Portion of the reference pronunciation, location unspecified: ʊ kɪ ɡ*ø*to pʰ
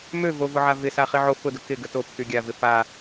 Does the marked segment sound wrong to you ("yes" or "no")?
yes